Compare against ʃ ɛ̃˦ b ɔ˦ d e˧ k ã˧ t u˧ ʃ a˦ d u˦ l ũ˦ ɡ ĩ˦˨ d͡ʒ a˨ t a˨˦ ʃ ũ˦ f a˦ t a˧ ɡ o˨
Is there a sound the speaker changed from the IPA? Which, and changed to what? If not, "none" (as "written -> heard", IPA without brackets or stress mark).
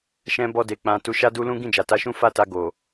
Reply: k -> k͡p